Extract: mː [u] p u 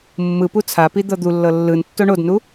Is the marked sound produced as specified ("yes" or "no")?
no